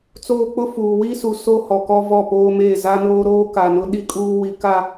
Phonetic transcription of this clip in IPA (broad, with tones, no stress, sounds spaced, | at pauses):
t͡s oː˦ k͡p ʊ˦ f uː˨ w i˦ s u˨ s o˦ h ɔ˨ k ɔ˦ v ɔ˦˨ p oː˦ m eː˦˨ z a˦ n oː˦ ɾ oː˦ k a˨ n ʊ˦ ɗ i˦ kʼ uː˦ w i˦ k a˦